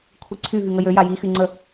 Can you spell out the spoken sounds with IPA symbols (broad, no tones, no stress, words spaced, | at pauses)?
kʷʰiǀʰy vyŋəjø jaji xyŋ͡ǀə